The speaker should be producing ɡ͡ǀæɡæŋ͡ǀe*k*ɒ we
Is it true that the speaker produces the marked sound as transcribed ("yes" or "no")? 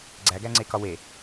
yes